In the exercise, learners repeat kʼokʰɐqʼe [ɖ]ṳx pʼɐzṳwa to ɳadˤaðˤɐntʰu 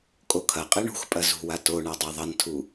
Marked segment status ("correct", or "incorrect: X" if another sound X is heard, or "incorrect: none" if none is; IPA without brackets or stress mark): incorrect: ɳ